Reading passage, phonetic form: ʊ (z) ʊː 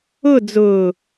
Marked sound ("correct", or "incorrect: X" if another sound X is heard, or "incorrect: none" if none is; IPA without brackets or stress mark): incorrect: d͡z